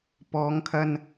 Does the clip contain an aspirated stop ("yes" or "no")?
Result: yes